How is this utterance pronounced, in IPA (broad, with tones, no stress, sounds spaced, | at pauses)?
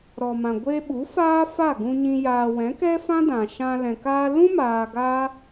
ɾ ɔ˨ m ã˨ ɡʷ e˧ ɓ u˨˦ f aː˦ f a˦˨ ɡ ũ˧ ɲ ĩ˧ j aː˨ w ɛ̃˨˦ k ɛ˦ f ã˦ d ã˨ ʃ ã˧ l ɛ̃˨ k aː˧ l ũ˦ m aː˧ ɡ aː˦